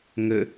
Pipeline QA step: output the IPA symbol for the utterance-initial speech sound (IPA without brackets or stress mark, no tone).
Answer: ŋ